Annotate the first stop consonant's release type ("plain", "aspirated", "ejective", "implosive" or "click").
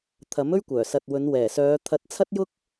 aspirated